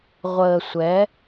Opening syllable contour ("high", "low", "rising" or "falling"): low